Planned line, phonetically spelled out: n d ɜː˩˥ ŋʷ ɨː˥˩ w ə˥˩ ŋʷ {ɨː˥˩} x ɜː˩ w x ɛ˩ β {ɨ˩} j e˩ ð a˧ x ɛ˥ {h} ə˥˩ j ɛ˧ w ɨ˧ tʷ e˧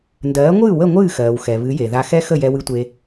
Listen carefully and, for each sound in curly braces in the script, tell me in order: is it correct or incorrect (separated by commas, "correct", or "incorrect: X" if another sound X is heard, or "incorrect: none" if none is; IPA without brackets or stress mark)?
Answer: correct, incorrect: ɨ˩˥, incorrect: x